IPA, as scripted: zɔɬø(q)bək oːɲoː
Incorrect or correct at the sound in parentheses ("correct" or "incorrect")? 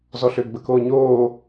incorrect